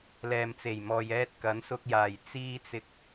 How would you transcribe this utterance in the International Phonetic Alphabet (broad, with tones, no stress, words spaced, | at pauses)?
lɛː˨mt͡se˨˩jmɔː˨jɛː˧t̚ kɐ˨˥nsʊ˧k̚jaː˨˩j t͡siː˧t͡sɪ˨k̚